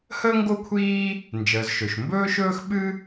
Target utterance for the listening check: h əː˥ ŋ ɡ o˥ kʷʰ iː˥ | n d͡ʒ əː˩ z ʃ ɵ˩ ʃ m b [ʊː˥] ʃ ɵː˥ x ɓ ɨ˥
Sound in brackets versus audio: incorrect: ɵː˥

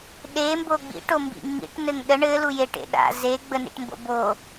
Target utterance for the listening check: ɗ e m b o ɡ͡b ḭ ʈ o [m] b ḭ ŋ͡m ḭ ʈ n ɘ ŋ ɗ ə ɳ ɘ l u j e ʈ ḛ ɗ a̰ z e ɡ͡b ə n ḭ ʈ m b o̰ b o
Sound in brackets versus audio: correct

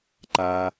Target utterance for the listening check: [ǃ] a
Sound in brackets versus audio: correct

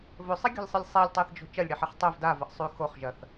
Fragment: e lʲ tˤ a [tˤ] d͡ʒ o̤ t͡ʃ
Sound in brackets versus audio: incorrect: θ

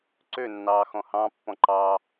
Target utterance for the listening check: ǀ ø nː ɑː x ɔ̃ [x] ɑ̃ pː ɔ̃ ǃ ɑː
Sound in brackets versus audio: incorrect: h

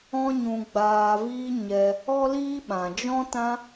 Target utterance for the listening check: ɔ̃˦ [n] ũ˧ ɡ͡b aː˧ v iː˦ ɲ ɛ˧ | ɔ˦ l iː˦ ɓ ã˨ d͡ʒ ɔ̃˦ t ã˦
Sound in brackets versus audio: incorrect: ɲ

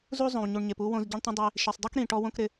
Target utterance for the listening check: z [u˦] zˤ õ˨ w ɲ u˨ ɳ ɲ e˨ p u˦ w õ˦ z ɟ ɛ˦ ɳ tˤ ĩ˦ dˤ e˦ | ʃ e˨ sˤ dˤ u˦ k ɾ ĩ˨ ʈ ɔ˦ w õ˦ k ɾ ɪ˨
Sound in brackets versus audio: correct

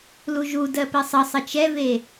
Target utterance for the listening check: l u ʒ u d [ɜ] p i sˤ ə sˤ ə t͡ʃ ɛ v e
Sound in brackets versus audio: correct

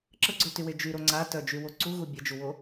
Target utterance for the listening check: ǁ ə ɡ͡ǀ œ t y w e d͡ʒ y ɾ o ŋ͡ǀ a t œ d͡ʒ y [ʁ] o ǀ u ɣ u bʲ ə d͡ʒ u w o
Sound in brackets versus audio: incorrect: w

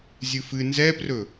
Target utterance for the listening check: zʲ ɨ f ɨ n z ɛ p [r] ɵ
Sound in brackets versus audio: correct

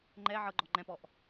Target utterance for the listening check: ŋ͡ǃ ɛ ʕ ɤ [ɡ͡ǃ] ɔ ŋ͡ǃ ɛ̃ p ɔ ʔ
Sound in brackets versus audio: correct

